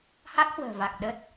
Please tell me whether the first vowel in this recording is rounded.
no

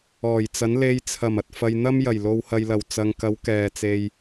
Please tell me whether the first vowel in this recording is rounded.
yes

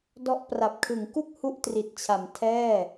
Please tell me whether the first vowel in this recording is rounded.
yes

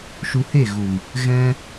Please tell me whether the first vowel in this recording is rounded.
yes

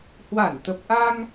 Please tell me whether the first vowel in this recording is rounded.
no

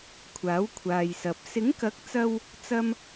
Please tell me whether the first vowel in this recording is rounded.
no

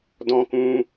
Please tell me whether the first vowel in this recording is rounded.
yes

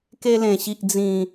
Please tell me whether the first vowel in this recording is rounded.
no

